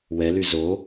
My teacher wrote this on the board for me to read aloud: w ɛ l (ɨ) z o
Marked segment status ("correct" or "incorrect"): incorrect